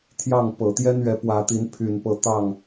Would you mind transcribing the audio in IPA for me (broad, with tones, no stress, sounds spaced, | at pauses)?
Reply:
t̪ʰ j ɑ˥˨ ŋ p ɤ˨˩ t̪ j ɛ˦ n ɥ ɛ˨˦ p w ä˨˦ t̪ i˨˦ n pʰ y˨˩ n p ɤ˨˦ t̪ ɑ˥˨ ŋ